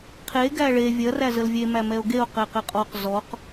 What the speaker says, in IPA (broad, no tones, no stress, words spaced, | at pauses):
qʰe ɡæɭe vʲɐr æzəlvʲe mæmɛo̯ɡeo̯ qɛqɛqʼɔq zɔq